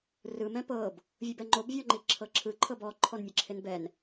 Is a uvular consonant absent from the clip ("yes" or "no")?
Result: yes